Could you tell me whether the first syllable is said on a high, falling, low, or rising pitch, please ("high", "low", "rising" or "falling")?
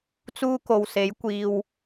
high